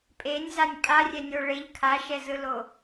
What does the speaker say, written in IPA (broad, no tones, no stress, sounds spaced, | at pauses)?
pʼ e nʲ z a nʲ pʼ a rʲ ɛ nʲ o ɭ e ʎ kʰ a ʃ ɛ z ɯ l o